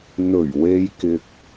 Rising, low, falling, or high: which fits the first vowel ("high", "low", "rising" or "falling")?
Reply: low